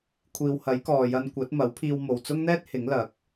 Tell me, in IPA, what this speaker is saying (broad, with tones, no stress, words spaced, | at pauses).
kʷʰiː˨whɐ˨˥jkɔː˨ jɐ˧nkʷɐ˨˥t̚ mɐ˨˥wpʰiː˧w mo˨wt͡sʊ˥ŋn̪ɛː˥t̚ hɪ˨˥ŋlɐ˨˥k̚